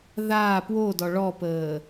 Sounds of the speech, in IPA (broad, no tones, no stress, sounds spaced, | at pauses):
ð aː p w o d ɔ ɭ ɔ p əː